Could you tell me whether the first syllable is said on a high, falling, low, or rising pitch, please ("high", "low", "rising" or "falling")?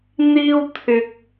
high